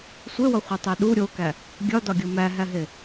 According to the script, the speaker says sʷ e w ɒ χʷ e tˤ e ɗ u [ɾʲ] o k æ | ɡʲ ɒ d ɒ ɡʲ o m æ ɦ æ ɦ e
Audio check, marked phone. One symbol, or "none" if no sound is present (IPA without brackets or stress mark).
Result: ɾʲ